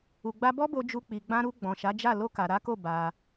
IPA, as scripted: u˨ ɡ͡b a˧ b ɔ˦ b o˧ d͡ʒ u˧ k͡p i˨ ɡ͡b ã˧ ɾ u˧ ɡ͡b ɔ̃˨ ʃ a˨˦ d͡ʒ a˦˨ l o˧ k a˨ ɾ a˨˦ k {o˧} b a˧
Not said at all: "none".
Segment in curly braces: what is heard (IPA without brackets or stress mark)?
o˦˨